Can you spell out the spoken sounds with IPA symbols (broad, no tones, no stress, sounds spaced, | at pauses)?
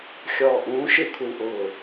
xʲ ɔː ʔ ũː ʃ ɪ kʷʰ ɪ w ʔ ʊː